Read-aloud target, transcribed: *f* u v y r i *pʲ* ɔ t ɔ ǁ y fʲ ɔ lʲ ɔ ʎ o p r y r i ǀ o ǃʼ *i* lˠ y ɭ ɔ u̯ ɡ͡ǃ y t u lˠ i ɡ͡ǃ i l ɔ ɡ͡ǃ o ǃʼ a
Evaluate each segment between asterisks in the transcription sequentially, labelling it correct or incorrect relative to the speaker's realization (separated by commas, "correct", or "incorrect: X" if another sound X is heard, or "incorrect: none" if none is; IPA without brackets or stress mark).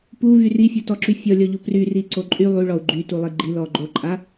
incorrect: p, incorrect: fʲ, incorrect: y